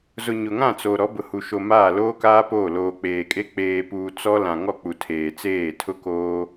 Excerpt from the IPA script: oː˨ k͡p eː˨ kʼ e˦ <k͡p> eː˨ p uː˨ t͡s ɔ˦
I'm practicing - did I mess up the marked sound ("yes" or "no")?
no